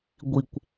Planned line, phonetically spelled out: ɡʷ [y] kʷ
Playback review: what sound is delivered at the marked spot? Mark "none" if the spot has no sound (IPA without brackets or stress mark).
i